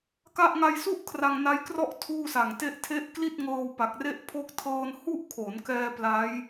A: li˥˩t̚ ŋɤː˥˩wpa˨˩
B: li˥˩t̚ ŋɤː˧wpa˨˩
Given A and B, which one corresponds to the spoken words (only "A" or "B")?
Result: B